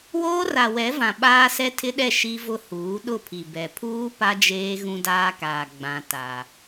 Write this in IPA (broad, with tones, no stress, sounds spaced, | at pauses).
w oː˦ r a˨ w ɛ˨˦ v ã˨ ɓ aː˦ s ɛ˦ tʰ ɪ˦ ɗ ɛ˦˨ ʃ i˦ v ʊ˦ h uː˨˦ ɗ ʊ˦˨ pʰ i˨ b ɛ˨ pʰ uː˦ p a˦ d͡ʒ eː˦ ɣ ũ˦ d aː˦ k aː˨ ɡ͡b ã˦ t a˦